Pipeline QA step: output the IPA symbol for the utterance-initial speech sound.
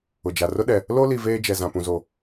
ʊ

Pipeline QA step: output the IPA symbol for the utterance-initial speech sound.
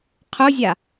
qʰ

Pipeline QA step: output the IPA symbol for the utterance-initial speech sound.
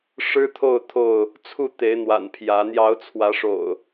ʂ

